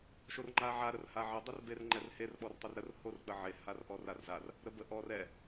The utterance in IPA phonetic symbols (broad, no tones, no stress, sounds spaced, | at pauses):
ʃ o r ŋ͡ǃ a ʕ a ɾ ə r h a ʕ ə dˤ ɛ r b e r ŋ͡ǃ ɛ r h e r ɓ ɔ r tˤ ʊ r ɾ ə r h o r k͡p ə ʕ e h a r ʔ ɔ r a r z a r | ɾ ə b ə ʔ ɔ r ɛ